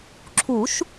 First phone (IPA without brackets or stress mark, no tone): ǁʰ